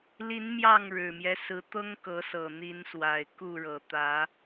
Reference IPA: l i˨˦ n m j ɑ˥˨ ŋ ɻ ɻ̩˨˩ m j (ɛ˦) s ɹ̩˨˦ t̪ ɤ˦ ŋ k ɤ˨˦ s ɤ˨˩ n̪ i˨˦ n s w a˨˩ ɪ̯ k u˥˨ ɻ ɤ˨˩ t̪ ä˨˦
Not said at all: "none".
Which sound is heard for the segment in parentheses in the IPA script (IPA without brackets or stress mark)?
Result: ɛ˦